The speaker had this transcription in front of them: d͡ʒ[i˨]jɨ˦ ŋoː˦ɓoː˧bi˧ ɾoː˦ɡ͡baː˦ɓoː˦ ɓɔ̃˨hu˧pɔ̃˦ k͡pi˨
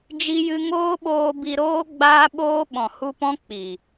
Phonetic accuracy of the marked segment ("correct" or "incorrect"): incorrect